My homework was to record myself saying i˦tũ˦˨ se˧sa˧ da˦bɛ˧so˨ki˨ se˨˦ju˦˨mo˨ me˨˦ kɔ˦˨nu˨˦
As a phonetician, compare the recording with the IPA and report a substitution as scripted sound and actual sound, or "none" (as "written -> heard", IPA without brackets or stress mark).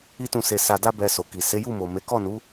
none